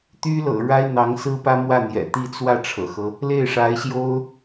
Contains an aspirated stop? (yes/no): yes